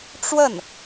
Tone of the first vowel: falling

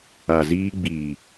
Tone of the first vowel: low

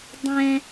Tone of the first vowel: high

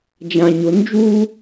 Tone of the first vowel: low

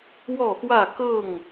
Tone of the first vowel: falling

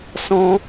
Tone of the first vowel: high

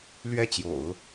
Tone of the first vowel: falling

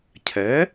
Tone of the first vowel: rising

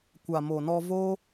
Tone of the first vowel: low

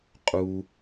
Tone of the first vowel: high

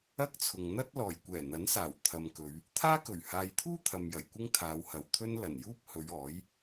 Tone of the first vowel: high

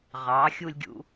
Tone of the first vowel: rising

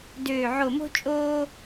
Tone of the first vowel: low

